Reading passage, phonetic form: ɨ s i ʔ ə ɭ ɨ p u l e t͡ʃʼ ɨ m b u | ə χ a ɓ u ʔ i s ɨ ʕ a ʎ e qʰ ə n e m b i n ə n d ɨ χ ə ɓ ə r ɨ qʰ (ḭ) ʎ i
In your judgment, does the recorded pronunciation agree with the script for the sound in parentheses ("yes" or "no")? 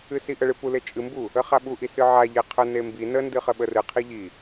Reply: no